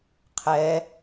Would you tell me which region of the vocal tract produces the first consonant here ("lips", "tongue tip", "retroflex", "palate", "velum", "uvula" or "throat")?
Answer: uvula